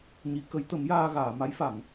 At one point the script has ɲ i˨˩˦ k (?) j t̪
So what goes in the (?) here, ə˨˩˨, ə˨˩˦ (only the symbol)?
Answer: ə˨˩˦